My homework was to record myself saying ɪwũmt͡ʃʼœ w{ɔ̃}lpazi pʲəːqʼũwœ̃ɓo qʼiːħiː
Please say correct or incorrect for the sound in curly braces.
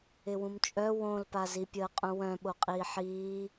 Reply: incorrect